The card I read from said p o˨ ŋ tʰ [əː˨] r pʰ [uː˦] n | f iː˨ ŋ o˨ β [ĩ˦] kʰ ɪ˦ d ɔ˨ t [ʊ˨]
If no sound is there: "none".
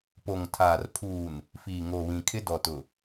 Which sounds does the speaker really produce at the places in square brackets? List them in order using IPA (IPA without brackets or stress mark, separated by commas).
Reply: aː˨, uː˨, ĩ˨, ʊ˨